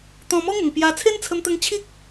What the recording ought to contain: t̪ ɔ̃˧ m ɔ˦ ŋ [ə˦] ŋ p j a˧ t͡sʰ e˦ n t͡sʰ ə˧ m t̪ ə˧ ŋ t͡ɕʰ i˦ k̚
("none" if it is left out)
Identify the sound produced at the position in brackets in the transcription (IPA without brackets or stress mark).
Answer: ə˨˩